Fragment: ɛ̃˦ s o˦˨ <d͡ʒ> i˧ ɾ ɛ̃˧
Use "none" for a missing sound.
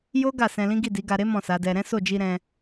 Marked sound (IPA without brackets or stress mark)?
d͡ʒ